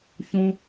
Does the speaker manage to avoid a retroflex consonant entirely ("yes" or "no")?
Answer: yes